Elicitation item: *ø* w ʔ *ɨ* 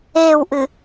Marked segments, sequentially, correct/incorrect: incorrect, correct

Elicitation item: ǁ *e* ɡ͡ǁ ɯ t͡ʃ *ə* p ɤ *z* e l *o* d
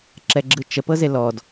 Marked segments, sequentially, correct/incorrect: incorrect, correct, correct, incorrect

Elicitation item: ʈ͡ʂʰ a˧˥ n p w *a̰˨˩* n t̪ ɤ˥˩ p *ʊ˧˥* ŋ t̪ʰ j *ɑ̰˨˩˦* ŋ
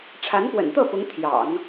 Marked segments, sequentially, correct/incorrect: incorrect, correct, correct

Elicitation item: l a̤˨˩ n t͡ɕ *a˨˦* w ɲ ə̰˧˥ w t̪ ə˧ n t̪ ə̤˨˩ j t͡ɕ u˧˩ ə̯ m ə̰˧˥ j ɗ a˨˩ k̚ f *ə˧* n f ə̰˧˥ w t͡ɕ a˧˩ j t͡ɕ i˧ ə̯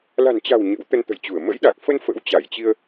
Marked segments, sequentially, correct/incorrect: incorrect, correct

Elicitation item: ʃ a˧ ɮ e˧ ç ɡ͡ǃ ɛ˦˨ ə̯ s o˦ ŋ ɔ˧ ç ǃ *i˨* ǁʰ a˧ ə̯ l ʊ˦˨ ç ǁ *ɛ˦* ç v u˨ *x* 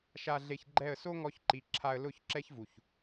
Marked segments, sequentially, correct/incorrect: correct, correct, incorrect

